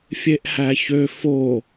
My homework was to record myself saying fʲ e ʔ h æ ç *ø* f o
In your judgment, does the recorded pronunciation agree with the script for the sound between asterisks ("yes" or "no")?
yes